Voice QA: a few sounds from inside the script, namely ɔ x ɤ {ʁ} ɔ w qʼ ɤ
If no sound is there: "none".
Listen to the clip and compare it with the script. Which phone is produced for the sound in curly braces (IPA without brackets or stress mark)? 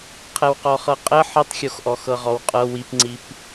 ʁ